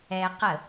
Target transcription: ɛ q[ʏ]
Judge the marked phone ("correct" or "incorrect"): incorrect